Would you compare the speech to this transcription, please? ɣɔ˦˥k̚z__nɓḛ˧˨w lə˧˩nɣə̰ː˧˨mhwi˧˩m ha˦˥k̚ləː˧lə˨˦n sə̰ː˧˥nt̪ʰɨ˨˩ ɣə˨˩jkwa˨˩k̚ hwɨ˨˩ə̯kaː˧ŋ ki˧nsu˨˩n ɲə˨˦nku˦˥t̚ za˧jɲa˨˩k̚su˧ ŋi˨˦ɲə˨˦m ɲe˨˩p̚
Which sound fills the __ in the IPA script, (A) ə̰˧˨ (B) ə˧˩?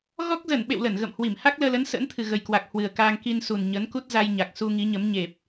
B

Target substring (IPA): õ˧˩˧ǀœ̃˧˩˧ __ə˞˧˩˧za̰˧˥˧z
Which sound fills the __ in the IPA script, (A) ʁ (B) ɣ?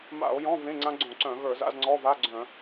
B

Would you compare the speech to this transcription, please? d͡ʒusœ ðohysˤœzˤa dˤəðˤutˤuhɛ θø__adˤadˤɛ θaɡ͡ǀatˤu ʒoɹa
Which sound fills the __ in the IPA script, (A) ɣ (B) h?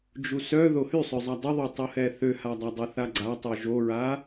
B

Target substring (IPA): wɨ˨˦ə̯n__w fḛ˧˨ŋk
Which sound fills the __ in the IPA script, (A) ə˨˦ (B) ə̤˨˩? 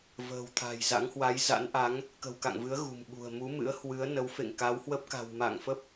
A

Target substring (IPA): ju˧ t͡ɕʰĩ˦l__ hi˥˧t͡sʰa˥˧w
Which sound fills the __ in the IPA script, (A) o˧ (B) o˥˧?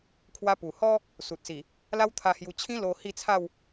A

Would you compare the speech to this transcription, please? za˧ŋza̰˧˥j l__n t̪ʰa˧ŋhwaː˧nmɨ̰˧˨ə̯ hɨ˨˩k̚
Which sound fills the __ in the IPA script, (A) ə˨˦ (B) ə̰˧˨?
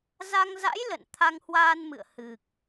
B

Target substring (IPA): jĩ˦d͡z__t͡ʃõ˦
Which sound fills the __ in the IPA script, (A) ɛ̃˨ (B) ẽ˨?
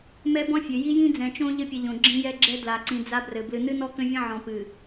A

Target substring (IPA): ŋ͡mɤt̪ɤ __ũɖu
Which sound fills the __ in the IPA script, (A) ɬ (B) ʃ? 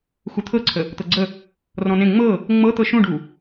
B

